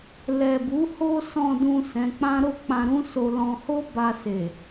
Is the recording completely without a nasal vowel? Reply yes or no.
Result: no